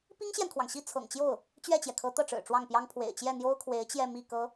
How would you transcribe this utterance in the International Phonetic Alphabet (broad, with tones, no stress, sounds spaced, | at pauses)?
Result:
p i˥ ŋ ɕ j ɛ˨ n kʰ w ɑ˩ ŋ ɕ i˥˩ t͡sʰ ɤ̰˨˩ ŋ t͡ɕ j o˥˩ ʊ̯ | t͡ɕ ɥ ɛ˥˩ t͡ɕ j ɛ˩ kʰ ɤ˧˥ t̪ ɤ˥˩ ʈ͡ʂ ɻ̩˨˩ ʈ͡ʂ w ɑ˥˩ ŋ p j ɑ˥ ŋ pʰ w ḛ˨˩ ɪ̯ t͡ɕ j ɛ˥˩ n̪ j o˥ ʊ̯ kʰ w e˧˥ ɪ̯ t͡ɕ j ɛ˥˧ m i˥˩ k ɤ˥